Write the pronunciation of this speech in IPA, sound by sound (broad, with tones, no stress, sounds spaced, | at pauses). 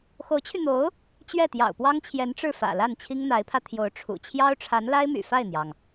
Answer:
x o˧˥ ʊ̯ t͡ɕʰ y˧ n̪ o˧˥ ʊ̯ | t͡ɕ ɥ ɛ˥˩ t̪ j ɑ̰˨˩ ʊ̯ p w ɑ˥ ŋ t͡ɕʰ j ɛ˧˥ n ʈ͡ʂ ɻ̩˥˩ f ä̰˨˩ l a˥˩ n t͡ɕʰ i˥ ŋ n̪ a˧˥ ɪ̯ pʰ ä˧ t̪ʰ j o˧˥ ʊ̯ ʈ͡ʂʰ ṵ˨˩ t͡ɕʰ j ɑ˥ ʊ̯ ʈ͡ʂʰ a˧˥ n l a˥ ɪ̯ m y̰˨˩ f a˥˩ ɪ̯ n̪ j ɑ˩ ŋ